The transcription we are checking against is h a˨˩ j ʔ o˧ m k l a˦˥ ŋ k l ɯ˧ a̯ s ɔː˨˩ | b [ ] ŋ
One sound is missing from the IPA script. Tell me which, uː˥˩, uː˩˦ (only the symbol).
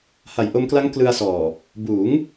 uː˩˦